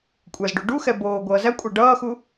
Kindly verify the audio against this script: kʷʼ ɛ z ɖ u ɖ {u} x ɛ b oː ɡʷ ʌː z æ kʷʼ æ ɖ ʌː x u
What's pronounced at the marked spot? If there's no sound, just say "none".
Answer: u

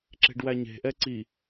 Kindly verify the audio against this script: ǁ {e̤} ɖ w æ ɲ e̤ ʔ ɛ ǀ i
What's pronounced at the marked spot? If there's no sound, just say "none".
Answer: e̤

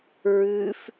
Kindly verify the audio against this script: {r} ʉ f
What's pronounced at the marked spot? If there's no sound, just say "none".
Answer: ɹ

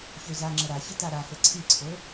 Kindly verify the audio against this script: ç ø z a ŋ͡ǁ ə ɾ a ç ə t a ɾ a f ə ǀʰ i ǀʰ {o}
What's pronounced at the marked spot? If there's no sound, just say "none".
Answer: o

